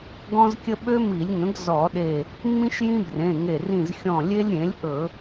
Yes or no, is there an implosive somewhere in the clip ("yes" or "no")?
yes